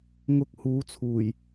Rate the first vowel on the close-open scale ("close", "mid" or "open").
close